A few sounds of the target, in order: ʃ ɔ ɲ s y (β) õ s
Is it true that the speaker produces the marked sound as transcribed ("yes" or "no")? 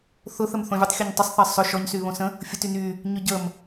yes